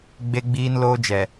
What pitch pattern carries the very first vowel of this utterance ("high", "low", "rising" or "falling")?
high